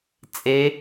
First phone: t͡sʼ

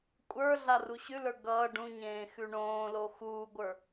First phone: kʷʼ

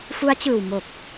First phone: f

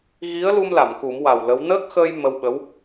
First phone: ɣ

